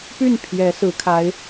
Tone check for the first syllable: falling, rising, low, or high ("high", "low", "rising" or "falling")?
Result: falling